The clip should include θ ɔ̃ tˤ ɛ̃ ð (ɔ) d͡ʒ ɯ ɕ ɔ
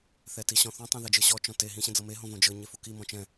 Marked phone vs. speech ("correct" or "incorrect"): incorrect